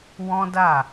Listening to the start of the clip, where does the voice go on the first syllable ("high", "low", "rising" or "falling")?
high